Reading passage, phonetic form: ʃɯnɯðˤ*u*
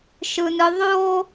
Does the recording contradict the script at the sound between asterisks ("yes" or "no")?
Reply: yes